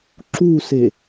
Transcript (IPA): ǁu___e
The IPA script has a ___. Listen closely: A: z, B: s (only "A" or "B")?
B